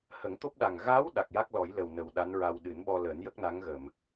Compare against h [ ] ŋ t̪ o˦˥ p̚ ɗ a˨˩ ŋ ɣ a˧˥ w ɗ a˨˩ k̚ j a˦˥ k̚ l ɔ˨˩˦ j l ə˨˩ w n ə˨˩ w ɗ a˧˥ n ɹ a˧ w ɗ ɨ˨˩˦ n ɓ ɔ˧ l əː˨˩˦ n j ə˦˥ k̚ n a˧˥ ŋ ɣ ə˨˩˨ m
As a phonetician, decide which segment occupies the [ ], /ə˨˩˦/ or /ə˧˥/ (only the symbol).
ə˨˩˦